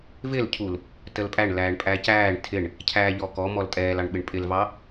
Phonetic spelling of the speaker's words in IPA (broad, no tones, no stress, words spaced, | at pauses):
vɪlcʰul | təlpʼæɳ læːɳpʼæcæːɳ tʰɪɳ | cʰæːʎɔkɔ mɔltʼɛːlɑɳɓɪɳ pʼɪlvɑ